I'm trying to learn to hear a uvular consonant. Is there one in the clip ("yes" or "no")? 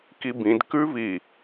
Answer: no